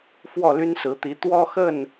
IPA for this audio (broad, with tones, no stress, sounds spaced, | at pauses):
f w ɔ˥˨ l y˦ n s ɹ̩˨˦ t̪ i˨˦ t̪ w ɔ˦ x ə˥˨ n